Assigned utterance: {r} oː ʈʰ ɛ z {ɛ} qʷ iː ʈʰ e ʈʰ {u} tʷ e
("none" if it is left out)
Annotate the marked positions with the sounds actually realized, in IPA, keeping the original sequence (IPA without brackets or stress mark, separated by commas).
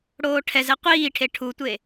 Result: ɽ, ɛ, u